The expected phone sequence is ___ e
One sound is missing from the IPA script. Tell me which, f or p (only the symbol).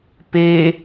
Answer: p